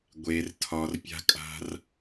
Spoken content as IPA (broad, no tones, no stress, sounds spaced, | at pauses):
ɡʷ e r tʰ ɒ r pʲ a̤ kʼ a̤ r